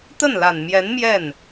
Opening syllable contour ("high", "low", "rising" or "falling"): falling